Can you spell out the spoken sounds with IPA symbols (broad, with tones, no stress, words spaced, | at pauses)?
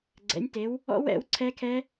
ɡ͡ǀɛ̰˩˥nʲte˩˥w | ɔ̰˦˥w ɛ̰˩˥w ǀʰɛ˦˥ kʰɛ˦˥